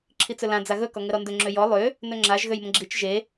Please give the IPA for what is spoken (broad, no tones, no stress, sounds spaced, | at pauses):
ǁʰ i t͡s ɵ l ã d͡z a ɣ ɵ k ɔ ŋ ə ɾ ɔ n d ɵ ŋ͡ǁ ø j ɔ lˠ ø | n ɵ ŋ͡ǁ a ʒ ɣ ø j m ə̃ ɡ͡ǁ i t͡ʃ ʒ e